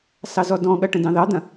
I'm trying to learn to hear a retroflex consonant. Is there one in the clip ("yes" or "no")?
yes